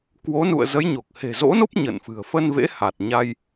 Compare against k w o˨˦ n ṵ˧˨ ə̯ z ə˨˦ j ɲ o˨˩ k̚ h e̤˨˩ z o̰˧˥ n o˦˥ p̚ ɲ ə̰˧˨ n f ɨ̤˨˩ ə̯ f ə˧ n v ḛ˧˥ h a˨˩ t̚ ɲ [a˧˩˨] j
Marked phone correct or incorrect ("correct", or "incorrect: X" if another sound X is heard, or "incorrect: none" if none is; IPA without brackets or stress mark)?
incorrect: a˧